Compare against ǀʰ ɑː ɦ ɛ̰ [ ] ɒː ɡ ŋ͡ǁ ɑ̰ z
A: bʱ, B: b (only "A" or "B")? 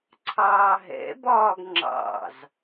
B